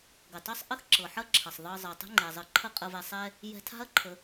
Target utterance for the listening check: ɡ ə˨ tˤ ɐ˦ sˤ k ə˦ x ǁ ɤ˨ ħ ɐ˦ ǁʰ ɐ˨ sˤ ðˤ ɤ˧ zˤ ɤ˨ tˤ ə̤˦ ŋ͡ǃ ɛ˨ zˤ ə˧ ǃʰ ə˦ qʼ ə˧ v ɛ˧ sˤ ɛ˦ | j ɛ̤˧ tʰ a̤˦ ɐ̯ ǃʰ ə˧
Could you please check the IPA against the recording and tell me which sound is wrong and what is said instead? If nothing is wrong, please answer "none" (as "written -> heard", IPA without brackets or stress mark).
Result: k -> ʔ